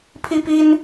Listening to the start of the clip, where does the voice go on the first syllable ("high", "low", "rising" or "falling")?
high